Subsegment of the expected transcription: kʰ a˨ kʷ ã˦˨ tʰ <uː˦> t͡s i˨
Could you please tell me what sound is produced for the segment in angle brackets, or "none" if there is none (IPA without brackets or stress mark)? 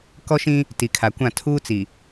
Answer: uː˦